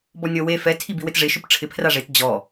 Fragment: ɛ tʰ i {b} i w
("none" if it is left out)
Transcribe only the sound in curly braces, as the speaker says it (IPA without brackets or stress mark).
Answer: b